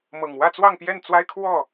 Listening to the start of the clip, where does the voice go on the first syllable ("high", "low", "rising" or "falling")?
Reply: low